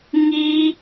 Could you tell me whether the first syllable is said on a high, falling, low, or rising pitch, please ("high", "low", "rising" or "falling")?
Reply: high